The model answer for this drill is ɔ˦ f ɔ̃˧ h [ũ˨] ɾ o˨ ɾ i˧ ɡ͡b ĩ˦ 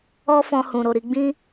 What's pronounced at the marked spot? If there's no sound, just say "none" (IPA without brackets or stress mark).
ũ˨